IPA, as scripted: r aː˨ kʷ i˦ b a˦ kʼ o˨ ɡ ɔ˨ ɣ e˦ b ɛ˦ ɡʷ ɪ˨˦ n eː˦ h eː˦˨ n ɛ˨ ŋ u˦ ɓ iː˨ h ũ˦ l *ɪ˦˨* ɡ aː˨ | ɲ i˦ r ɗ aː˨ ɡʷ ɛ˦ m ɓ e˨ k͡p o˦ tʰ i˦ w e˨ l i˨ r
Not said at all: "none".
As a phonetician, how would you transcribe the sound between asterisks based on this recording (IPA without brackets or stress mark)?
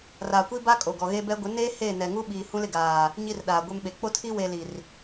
ɪ˦˨